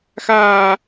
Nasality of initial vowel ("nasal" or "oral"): oral